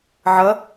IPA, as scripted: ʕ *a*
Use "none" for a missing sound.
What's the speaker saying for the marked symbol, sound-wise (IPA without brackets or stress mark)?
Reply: ʌ